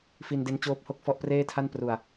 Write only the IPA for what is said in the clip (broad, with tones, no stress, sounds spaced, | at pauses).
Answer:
f i˧ n d e˦˥ n t͡ɕ oː˦˥ p̚ h o˥˩ k̚ f ɔ˦˥ ʔ p r eː˥˩ tʰ a˥˩ n p r u˨˩ a̯